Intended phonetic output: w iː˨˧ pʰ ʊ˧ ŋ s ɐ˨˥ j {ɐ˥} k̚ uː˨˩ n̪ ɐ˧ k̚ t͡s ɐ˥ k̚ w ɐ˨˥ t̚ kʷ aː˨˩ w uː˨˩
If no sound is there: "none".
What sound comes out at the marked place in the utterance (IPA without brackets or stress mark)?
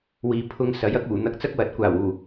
ɐ˥